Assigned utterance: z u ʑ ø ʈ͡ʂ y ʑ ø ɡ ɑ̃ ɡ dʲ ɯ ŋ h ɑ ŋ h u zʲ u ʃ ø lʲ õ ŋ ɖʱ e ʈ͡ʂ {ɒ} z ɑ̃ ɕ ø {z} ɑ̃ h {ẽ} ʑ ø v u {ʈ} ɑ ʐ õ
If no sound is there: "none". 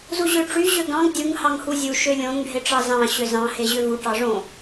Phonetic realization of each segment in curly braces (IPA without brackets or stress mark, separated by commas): ɑ, z, e, ʈ